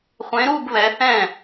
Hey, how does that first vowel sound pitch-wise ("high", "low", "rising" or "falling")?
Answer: rising